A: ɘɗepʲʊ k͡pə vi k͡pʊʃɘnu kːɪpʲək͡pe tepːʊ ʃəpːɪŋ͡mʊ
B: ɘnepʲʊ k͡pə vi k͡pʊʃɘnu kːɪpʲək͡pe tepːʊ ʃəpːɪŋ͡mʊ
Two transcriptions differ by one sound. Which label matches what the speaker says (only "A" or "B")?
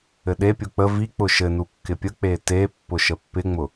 A